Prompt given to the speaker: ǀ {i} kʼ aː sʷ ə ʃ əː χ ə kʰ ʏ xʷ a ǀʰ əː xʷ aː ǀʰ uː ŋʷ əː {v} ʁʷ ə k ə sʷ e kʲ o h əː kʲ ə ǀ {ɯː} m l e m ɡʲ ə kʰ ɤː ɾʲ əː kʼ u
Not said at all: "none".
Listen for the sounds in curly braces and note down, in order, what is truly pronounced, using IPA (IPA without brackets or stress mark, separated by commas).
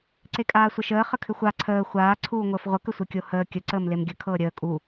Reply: e, f, əː